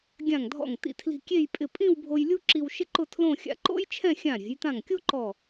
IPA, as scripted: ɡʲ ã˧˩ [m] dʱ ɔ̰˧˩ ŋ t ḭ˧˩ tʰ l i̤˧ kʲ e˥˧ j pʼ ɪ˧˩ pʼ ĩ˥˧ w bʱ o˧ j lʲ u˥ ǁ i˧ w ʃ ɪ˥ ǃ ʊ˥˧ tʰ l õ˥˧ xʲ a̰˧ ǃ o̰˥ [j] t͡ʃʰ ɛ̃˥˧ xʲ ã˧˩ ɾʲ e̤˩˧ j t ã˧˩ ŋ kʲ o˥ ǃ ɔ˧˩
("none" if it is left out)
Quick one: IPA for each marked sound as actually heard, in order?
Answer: ŋ, j

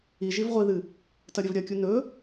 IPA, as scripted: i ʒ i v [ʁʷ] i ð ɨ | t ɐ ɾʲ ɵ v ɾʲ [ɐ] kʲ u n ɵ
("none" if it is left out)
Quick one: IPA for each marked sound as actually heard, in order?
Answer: ʁʷ, ɐ

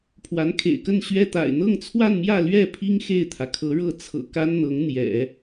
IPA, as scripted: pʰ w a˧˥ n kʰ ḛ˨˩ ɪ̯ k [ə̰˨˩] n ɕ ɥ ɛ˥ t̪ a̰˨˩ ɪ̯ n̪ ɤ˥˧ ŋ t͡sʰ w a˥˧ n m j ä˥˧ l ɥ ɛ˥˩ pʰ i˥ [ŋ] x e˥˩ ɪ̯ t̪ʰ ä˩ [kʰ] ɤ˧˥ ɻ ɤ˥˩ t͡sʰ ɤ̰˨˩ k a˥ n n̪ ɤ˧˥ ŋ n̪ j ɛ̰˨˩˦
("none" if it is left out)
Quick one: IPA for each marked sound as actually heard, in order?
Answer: ə˥˩, ŋ, kʰ

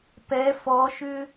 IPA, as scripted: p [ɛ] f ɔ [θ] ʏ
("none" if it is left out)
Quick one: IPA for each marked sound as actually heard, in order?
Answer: ɛ, ʃ

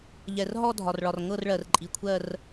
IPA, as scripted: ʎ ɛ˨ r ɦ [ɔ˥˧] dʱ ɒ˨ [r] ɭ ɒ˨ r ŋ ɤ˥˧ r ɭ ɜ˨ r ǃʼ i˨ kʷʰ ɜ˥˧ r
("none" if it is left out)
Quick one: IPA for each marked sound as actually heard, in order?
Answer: ɔ˥˧, r

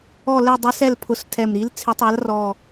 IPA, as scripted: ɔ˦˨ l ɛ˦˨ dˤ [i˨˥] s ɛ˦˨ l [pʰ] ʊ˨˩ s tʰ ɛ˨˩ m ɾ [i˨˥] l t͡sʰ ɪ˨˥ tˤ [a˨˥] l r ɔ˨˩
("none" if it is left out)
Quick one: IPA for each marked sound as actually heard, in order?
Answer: i˨˥, pʰ, i˨˥, a˨˥

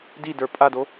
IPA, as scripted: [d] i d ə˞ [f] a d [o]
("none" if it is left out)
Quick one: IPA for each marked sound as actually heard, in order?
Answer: d, pʼ, o

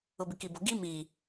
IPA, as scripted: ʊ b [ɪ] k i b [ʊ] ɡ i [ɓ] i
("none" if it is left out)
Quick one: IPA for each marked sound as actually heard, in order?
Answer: ɪ, ʊ, m

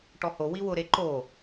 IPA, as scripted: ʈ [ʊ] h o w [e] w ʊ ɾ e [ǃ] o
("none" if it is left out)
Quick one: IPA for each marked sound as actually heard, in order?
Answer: ɔ, i, ǃ

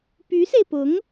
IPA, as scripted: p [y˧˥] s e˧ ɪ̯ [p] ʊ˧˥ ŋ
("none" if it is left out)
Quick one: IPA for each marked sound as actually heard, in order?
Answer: y˧˥, p

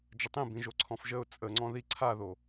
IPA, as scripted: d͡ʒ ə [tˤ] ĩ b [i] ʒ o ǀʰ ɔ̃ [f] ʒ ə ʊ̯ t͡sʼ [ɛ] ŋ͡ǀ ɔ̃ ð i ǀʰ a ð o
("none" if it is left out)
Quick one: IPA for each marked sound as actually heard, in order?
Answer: tˤ, ĩ, f, ə

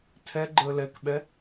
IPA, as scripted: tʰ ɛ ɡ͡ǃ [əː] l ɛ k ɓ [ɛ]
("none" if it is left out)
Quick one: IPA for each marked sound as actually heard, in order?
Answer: əː, ɛ

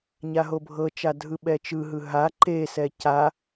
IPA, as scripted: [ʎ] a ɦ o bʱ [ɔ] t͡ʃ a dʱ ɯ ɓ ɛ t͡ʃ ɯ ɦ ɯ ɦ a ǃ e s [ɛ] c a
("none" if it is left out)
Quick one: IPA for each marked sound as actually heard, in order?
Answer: ɲ, ɤ, ɛ

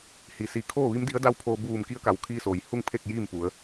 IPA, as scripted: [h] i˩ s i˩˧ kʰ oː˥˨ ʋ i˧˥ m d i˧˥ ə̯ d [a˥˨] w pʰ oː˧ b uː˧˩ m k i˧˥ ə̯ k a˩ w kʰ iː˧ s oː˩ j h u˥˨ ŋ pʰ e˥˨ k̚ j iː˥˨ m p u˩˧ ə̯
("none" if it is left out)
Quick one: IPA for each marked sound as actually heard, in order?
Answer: h, a˥˨

